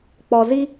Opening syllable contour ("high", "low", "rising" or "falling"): low